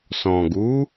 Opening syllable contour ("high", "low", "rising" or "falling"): low